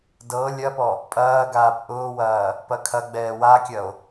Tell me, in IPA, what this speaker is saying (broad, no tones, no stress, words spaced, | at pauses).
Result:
dɤ lʲɐpɔ | pʼɐː ɡaːpʔʊːwɐː | pɐkʰɐɡ͡bɛː wakʲɐo̯